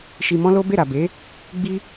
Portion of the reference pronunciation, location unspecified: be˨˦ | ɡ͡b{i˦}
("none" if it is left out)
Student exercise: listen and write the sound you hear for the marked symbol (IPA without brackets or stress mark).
i˦